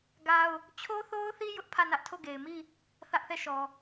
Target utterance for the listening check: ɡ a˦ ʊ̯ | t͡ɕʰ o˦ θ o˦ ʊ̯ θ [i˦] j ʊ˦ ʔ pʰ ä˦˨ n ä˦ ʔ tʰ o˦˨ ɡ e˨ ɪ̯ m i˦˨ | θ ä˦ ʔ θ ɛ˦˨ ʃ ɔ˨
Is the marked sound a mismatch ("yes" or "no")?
no